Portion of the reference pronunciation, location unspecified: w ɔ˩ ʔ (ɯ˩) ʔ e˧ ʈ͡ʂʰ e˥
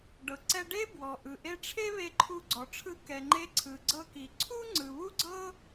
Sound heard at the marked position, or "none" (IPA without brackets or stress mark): ɯ˩